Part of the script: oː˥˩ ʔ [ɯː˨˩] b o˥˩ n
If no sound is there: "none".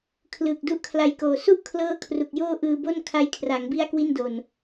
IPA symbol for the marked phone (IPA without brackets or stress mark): ɯː˧